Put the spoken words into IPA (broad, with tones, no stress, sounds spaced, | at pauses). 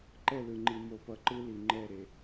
ǃ ɛ˦˨ l ɯ˨ ŋ͡ǃ i˨ m o˨˦ p ʌ˨ ǃ ɯ˦ l i˨ ŋ͡ǃ ɛ˦˨ ɾ e˨